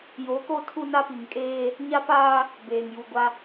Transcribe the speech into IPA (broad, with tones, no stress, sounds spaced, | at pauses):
j o˨˦ k o˦˨ tʰ u˦ n a˦ p i˨ ŋ kʼ eː˦ | ɲ a˦ p aː˦ | b eː˨ ŋ j u˨ ɡʷ a˦